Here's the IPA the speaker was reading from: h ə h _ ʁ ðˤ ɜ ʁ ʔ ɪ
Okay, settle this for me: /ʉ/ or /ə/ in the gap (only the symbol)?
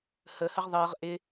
ə